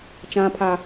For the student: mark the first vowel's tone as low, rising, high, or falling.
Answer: high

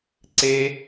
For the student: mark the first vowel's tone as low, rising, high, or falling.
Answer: low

